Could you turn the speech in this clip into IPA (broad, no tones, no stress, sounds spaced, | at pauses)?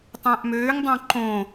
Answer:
tˤ æ̃ ʔ m øː ŋ dˤ õ ǃ õ